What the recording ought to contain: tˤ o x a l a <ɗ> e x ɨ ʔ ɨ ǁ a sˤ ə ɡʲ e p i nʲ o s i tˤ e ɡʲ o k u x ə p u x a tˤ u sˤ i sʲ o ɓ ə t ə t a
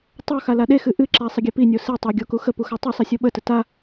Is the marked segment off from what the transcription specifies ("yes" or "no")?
no